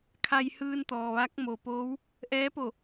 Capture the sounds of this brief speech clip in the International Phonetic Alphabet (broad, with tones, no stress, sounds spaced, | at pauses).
kʰ a˧ j h ɯː˧ n t̪ ɔː˩ ʋ a˧˥ k̚ m o˩ p oː˧˥ w | ʔ ɛː˧˥ p o˧˩